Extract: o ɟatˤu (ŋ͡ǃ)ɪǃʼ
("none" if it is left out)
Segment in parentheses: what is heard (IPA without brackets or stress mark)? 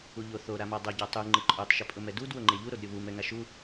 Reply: ŋ͡ǃ